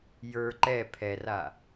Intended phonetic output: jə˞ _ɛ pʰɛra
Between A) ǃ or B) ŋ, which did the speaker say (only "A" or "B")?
A